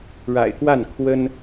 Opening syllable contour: low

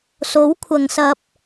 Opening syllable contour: rising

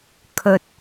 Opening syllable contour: low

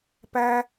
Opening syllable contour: high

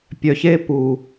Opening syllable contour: low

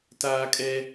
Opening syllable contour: high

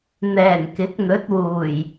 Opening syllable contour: low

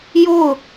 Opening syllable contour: falling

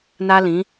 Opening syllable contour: high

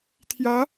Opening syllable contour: rising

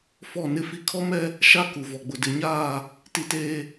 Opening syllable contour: falling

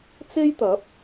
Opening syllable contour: high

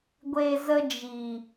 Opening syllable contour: low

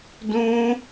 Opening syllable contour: high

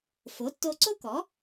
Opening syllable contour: rising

